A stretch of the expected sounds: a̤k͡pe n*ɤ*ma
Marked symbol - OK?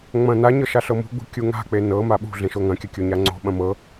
yes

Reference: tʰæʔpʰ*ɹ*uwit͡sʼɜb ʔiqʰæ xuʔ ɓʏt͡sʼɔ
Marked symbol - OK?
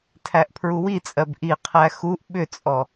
yes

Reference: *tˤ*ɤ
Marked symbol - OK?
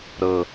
no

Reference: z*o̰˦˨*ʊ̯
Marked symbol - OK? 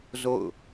yes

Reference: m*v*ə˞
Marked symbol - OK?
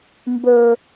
no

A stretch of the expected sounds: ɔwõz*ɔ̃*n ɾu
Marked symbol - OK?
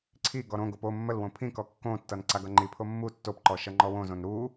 no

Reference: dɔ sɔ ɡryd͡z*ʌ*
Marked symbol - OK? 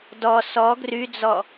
no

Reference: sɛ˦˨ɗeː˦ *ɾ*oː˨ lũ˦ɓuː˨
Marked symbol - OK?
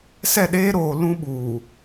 yes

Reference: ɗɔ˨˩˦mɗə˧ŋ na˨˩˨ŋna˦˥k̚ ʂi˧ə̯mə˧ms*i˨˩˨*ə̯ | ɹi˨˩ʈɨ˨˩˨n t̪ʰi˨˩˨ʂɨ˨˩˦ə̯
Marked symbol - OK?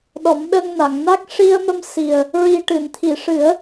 no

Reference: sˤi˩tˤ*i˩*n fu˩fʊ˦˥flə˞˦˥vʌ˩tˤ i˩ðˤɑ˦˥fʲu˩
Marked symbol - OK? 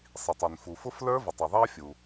yes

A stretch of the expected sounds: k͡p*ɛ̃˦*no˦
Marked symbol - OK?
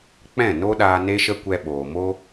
no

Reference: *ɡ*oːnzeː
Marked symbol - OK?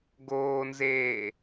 yes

